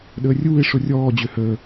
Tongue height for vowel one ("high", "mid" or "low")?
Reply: mid